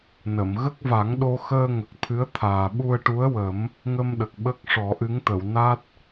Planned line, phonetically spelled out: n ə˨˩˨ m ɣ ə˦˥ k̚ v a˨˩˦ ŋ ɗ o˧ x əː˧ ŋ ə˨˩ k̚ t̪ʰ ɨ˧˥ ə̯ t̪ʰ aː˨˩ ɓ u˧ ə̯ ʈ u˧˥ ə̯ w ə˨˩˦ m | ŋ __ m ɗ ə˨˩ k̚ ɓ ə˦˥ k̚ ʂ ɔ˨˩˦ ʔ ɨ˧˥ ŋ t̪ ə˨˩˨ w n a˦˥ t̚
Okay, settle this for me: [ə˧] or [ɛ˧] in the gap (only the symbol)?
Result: ə˧